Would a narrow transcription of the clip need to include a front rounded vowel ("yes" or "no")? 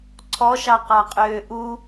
yes